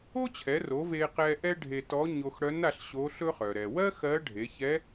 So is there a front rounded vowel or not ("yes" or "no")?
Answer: yes